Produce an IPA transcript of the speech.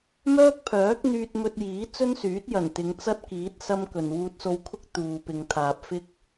m œː˥ k̚ pʰ œː˨˥ k̚ n̪ yː˧ t̚ m ɵ˧ t̚ j iː˨˥ t͡s ɵ˥ n s yː˨˥ t̚ j ɐ˨˩ n t̪ ɪ˨˧ ŋ t͡s ɐ˥ t̚ k iː˨˥ t̚ s ɐ˥ m k ɵ˨ n w uː˧ t̚ s o˧ w kʰ ʊ˥ k̚ t̪ uː˨ p ɪ˨ ŋ t̪ʰ aː˨ p̚ f ɪ˥ k̚

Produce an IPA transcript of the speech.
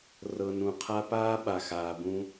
r ɤ˧ n ũ˨ qʰ a˦ p aː˦ ɓ a˨ x aː˨ b ũ˧

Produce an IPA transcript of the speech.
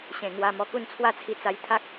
ɕ ẽ˨˩ ŋ w a˧ m ɔ˧ k u˥˧ n t͡sʰ w a˥˧ t͡sʰ i˧ t͡s a˧ j t̪ʰ a˦ k̚

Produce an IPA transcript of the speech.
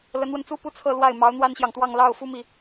l ə˧˥ n w ə˧ n t͡s u˥ p u˥ t͡sʰ ɤ˥˧ l w a˥˩ ɪ̯ m ɑ˧˥ ʊ̯ n̪ w a˥ n ɕ j ɑ˨ ŋ t̪ w ɑ˥˧ ŋ l ɑ˥˩ ʊ̯ f u˥ m i˨

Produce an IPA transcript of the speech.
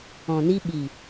ɔ̃˨ n i˧ ɓ i˨

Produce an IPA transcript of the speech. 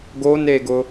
ɡ o n e ɡ ʊ

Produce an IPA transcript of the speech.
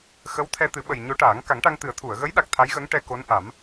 x ə˧˥ w t̪ʰ ɛ˧ t̪ ɨ˨˩˦ ɓ ə˨˩ j ɲ o˧˥ ʈ aː˨˩˦ ŋ k a˨˩˦ ŋ ʈ a˧ ŋ t̪ ɨ˨˩˦ ə̯ t̪ʰ u˨˩˨ ə̯ ɣ ə˧˥ j ɗ a˨˩ k̚ t̪ʰ a˧˥ j ɣ ə˧˥ ŋ ʈ ɛ˧ k o˧˥ n ʔ a˨˩˦ m

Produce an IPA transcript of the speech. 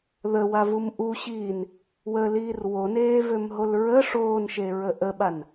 ð ə w a v u m ʔ u ɕ iː n | w ə l iː r w o n eː v ø m ɦ o l ɹ ə ʂ oː n ʃ e ɹ ə ʔ ə ɓ a n

